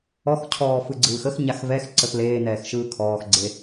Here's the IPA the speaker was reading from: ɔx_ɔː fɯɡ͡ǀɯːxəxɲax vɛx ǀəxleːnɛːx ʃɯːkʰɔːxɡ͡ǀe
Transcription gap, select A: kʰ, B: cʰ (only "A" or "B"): B